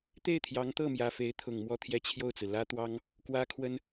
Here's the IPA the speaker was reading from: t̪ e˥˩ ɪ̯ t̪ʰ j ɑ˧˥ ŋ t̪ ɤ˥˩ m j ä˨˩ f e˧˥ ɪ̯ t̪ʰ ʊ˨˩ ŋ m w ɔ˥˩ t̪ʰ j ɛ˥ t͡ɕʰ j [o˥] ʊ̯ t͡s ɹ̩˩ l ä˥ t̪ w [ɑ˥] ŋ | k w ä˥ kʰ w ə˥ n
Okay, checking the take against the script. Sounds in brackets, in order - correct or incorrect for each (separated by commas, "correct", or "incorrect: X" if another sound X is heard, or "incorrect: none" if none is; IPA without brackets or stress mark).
incorrect: o˥˩, correct